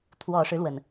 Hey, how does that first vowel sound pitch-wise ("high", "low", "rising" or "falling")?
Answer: low